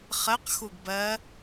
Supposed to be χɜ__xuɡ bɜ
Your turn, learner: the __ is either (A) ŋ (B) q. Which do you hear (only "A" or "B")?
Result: B